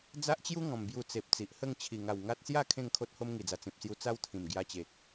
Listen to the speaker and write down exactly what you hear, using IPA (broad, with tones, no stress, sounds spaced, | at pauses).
d͡z a˦ ʔ t͡ɕ j u˦ ŋ ɔ̃˨˩ m b j u˧ t͡s e˨ p̚ t͡s i˨ ʔ h ə˥˧ ŋ t͡ɕʰ i˨˩ ŋ a˨˩ w ŋ a˦ t̚ s j a˥˧ kʰ ẽ˥˧ ŋ kʰ o˦ t̚ h o˦ m ŋ i˨˩ d͡z a˨˩ t͡s ĩ˨ p̚ s j u˧ t͡s a˦ w t̪ʰ ĩ˨˩ m ɡ j a˧ t͡ɕ e˨ k̚